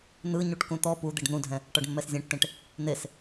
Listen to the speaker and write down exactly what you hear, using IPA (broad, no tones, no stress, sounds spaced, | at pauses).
n̪ ɯ ɲ u ʈ k ũ t̪ ɔ p u d̪ e ɖ n̪ ũ dʱ ɛ̃ | ʈ ɔ ɖ mː ɛ s zʲ ẽ ʈ t ẽ ʈ | n̪ e s